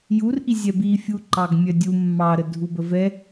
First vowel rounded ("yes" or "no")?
yes